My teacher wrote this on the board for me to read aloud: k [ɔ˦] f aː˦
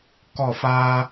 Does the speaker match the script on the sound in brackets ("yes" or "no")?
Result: no